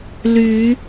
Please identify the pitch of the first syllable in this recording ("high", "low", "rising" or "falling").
rising